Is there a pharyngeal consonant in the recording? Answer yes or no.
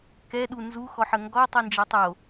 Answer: yes